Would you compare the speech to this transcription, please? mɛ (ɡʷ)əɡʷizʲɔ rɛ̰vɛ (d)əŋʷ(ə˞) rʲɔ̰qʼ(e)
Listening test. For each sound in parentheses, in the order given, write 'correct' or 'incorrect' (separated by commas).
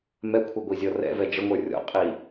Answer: incorrect, incorrect, correct, incorrect